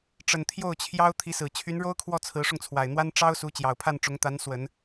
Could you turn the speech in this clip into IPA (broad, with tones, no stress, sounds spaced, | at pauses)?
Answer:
ʈ͡ʂ ə˨˩ n t̪ʰ j o˥˩ ʊ̯ t͡ɕʰ j ɑ˥ ʊ̯ t̪ʰ i˧˥ s ɹ̩˨˩ t͡ɕʰ y˧˥ n ɻ o˥ ʊ̯ kʰ w ɔ˥˩ t͡sʰ ɹ̩˧˥ ʂ ʊ˧ ŋ t͡sʰ w a˨˩ ɪ̯ n̪ w a˥ n ʈ͡ʂ ɑ˥ ʊ̯ s u˧˥ t͡ɕ j ɑ˨˩ ʊ̯ pʰ a˥˩ n ʈ͡ʂ ʊ˧˥ ŋ t̪ a˧˥ n s w ə˨˩˦ n